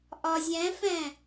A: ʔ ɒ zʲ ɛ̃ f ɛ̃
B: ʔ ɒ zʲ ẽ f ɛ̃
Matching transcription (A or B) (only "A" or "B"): A